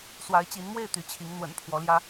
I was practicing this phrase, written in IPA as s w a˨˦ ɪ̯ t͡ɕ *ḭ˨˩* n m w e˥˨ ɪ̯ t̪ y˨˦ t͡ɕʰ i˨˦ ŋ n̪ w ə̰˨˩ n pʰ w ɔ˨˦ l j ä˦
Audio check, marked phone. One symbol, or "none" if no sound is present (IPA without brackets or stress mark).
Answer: i˨˦